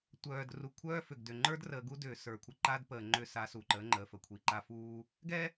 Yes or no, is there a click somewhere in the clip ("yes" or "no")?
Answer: yes